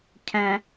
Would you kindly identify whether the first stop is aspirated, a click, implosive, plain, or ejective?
aspirated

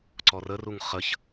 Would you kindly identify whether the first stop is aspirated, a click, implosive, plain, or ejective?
click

